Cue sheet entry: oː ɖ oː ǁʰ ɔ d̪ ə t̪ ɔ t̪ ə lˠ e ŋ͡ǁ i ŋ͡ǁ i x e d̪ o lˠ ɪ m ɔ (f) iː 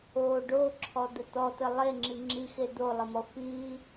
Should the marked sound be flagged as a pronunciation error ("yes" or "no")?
no